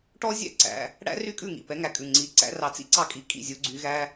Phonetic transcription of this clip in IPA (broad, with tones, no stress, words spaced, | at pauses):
ʈɔ˦˥zʲæ̰˥˩ ǀæ̰˩˧˩ | ɽæ̰˦˥ry˥˩kʼʉ˥˩ ŋḭ˩˧˩pɛ˨˦ŋæ˨˦kʼʉ˩˧˩ ŋ͡ǀi˩˧˩ ǀæ̰˨˦rɑ˨˦t͡sḭ˥˩ ǀɑ˥˩kʼi˨˦kʼḭ˥˩zʲu˨˦ ɡ͡ǀy˨˦ɣæ˦˥